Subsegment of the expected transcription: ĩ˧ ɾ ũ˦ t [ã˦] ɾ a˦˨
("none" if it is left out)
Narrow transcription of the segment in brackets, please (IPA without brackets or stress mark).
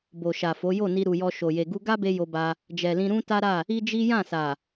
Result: a˦